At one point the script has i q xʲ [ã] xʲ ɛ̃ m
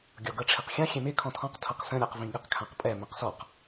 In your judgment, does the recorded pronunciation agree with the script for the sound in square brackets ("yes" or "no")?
yes